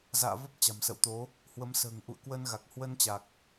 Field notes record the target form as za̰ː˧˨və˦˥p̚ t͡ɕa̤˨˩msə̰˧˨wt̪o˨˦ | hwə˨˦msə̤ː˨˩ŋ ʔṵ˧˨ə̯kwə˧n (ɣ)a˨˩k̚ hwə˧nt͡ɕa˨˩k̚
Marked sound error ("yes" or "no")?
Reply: no